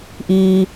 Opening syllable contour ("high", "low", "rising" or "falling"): low